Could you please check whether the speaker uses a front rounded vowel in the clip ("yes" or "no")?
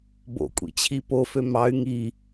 yes